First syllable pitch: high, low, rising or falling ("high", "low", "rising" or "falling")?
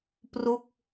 falling